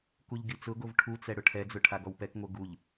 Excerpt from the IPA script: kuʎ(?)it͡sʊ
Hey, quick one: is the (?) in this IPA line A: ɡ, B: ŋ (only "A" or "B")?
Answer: A